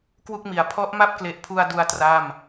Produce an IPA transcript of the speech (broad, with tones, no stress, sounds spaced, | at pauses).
k w u˥˩ k̚ m i˩˦ a̯ pʰ ɔ˦˥ ʔ m a˥˩ p̚ k l e˨˩ ʔ pʰ u˧ a̯ d u˧ a̯ t r a˥˩ m